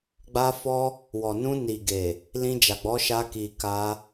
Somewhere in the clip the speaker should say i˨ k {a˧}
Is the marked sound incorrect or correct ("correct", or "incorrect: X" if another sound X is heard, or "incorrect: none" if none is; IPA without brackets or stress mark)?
correct